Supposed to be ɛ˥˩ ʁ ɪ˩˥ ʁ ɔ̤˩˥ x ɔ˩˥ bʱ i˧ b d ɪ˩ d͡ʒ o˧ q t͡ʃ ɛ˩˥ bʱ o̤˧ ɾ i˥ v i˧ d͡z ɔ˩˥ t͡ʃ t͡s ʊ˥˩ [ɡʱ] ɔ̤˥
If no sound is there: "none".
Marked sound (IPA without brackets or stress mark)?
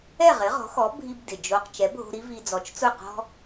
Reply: q